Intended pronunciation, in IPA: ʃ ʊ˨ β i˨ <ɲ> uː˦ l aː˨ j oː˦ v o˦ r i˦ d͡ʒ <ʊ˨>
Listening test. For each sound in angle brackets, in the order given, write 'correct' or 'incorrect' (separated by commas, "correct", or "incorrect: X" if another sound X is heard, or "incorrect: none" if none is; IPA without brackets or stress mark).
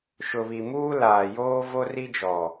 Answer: incorrect: m, incorrect: ɔ˨